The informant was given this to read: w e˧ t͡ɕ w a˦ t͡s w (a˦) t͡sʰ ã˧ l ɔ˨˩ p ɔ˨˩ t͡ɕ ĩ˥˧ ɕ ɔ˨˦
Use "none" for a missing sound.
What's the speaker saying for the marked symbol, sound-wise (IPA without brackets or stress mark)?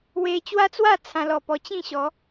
a˥˧